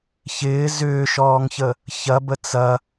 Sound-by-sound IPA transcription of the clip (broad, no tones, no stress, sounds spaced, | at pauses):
ç ɪː z ʏː ʃ ɔː ŋ ç ə | ç ɐ b ə t͡s ɐ